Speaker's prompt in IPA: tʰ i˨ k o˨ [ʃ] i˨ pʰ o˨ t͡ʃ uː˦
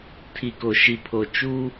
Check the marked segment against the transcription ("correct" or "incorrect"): correct